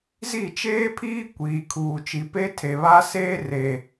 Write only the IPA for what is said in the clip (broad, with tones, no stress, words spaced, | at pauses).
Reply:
zi˦˨t͡ʃeː˦pʰiː˦ kʷiː˨kʰuː˨ t͡ʃi˨pe˦tʰe˨βaː˦ seː˦re˨